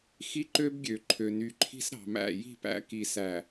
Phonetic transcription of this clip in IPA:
x i˦ ǃ ø˦ b ɡʲ ø˨ ǃʰ ø˨ n y˨ ǃʰ i̤˦ s ɾ ɑ̤˨ m æ̰˦˨ j i̤˦˨ p æ̰˦ k i˨ s æ˨

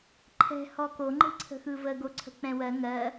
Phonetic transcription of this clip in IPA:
ǃʰ ɛ̤ h ɔ k o ŋ͡ǃ e̤ ǀʰ ə̤ x ɯ v ə ɡ o ǀʰ ə̤ k͡p ɛ̃ w ɜ ŋ ɜ

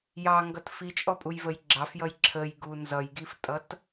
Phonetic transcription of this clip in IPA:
j ɑ ŋ ɡ ʌ t f i t͡ʃʼ ɔ pʼ u j v ə j ɡ͡ǁ ɑ f j ʌ j ǁʰ ə j ɡ u n z ʌ j ɡ i f tʼ ʌ t

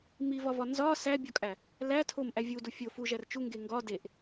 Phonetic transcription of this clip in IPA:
m i v ɒ v ɒ n z ɒ s æ bʲ ɒ kʼ æ | l æ tʰ o m ʔ æ vʲ u d u fʲ o f u ʒ æ r t͡ʃ u ŋ ɡ e ŋ ɡ ɒ d e ʔ

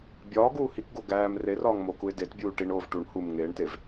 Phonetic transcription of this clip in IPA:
bʲ ɒː ɡ uː h i k ɡ o ɡ æː m r e r ɒː ŋ m o k u ɪ̯ d e t bʲ uː ʈ i ɳ oː v ʈ u ɳ h u m ŋ eː ɳ t e v

